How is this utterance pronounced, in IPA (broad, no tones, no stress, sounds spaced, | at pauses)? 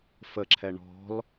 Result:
f ə ǁʰ ɛ ɳ ɔ̤ l